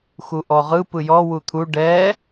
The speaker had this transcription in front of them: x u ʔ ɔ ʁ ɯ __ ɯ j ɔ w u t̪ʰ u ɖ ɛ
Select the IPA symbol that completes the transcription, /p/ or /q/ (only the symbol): p